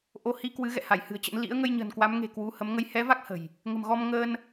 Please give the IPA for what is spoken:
ʔo˧hi˧kwɨ˨˦ ɣɛ̰˧˨ha˧˩j hɨ̤˨˩ə̯t͡ɕə̰˧˥n lḭ˧˥ə̯ŋə˧jɲə̤˨˩n kwa˨˦mŋe̤˨˩ kwu˨˦hə˨˦m ŋə˨˦jhɛ˨˦va˦˥k̚ hə̤˨˩j | ŋə̤˨˩mɣɔ˧m ŋəː˧n

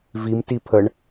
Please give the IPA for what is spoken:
vimti pʰəɳ

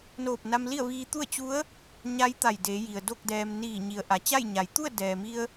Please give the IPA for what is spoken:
noː˧˩p̚na˧mli˥˨ə̯ʋiː˧ t̪u˥˨ə̯t͡ɕu˧˥ə̯ | ɲa˧˥jt̪a˧˩jde˩˧ji˩ə̯ do˥˨k̚dɛː˧m niː˧˩ɲi˩˧ə̯ ʔa˩t͡ɕa˥˨jɲa˩˧j t̪u˥˨ə̯dɛː˩mi˧ə̯

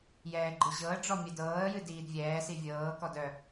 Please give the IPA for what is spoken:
jɛːɡ͡ǃɨʑɤə̯ɖ͡ʐɔ mʲɛdɤːə̯jɨ diːdvʲɛːsi vʲɤːkɔd œ

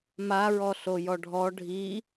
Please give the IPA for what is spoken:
maɹɔ ɬojɔɖʱɔ ɖʱi

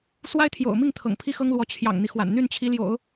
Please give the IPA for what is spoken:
swa˥ɪ̯t̪ʰjo̰˨˩ʊ̯mi˥˩ŋ t̪ʰɤ̰˨˩ŋpʰi˥xɤ˥ŋlwɔ˧˥ t͡ɕʰjɑ̰˨˩ŋn̪i˦xwa̰˨˩n n̪y˥˩nt͡ɕʰi˧˥ljo̰˨˩˦ʊ̯

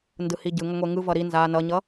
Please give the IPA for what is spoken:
ndɯhiɟɯŋʌ ŋʷeŋɯvʌ ɾi nza nʌɲʌ

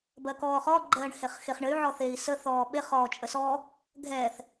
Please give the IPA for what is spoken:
bɜkɔːχɔ ɡ͡ǃɜːɳheχxeχɳɘy̯ ʕɔθeːi̯sə θɔːɓeχ ɔːt͡ʃʼəsɔ | ɡʱɛθ

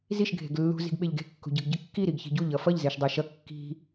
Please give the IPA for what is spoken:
ziʃ ɡʱe̤ɡlːṳ zi̤ɡɓeʎɡe̤ kːṳɟɯɡɟɯkːi ɾiɡçi̤ɟu ʎʌfʌʎ zeʃdˤaʃʌ kːi̤

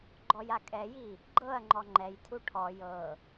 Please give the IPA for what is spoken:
ɡ͡ǃɔjakʼɛji | ɡ͡ǃɤɐ̯ŋ͡ǃɔ ŋ͡ǃɛjtʰu ʈʰɔ jɤ

